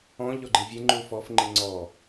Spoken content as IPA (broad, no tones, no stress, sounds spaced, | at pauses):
ɔ̃ ʎ ɔ ɡ͡ǃ i vʲ e ŋ͡ǃ u f ɔ f ŋ͡ǃ i ŋ͡ǀ ɔ